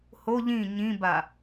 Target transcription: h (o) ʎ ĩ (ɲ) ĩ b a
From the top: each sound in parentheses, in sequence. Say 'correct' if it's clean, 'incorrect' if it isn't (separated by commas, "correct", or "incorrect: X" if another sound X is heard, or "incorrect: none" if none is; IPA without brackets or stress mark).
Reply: correct, correct